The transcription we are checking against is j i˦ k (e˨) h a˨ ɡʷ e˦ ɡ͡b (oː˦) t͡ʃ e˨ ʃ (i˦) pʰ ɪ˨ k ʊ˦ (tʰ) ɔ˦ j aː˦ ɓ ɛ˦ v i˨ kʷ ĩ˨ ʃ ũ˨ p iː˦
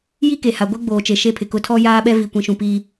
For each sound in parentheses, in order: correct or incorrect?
correct, incorrect, incorrect, correct

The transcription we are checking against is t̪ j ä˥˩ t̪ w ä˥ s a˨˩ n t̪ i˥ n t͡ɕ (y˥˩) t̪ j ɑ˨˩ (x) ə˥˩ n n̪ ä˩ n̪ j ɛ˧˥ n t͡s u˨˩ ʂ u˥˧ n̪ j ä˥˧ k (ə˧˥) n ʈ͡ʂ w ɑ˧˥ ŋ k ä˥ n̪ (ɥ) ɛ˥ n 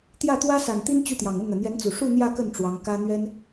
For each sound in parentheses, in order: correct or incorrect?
correct, incorrect, incorrect, correct

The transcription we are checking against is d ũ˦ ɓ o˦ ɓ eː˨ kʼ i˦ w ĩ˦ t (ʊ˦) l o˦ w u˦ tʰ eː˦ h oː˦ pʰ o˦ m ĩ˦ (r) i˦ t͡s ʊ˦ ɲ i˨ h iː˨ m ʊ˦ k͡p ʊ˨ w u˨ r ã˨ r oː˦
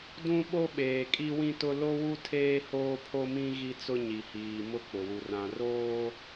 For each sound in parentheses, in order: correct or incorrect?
correct, incorrect

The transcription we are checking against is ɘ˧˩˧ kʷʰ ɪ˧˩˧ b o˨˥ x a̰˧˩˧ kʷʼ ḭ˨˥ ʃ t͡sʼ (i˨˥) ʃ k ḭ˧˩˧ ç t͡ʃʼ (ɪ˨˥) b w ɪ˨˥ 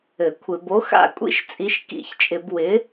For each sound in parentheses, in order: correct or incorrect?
correct, incorrect

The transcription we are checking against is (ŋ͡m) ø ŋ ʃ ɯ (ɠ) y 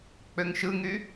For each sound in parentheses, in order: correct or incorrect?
incorrect, incorrect

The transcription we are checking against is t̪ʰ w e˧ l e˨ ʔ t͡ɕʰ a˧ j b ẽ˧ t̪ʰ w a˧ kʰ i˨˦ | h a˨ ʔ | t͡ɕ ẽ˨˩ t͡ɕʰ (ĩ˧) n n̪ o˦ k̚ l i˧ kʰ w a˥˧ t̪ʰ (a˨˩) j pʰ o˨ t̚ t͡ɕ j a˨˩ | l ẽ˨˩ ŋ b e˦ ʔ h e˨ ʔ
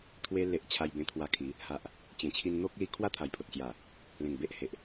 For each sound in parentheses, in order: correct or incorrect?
incorrect, correct

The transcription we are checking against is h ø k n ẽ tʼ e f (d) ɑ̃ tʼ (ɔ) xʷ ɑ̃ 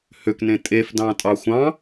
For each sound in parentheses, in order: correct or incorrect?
correct, incorrect

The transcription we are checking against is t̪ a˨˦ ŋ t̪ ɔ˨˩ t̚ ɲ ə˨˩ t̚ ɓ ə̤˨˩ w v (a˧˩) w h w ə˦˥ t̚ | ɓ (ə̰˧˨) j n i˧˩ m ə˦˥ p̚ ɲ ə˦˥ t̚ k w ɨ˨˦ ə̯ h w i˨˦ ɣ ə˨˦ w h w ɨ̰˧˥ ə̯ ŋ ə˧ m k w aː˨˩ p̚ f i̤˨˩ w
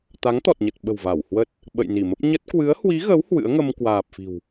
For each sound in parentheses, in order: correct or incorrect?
correct, correct

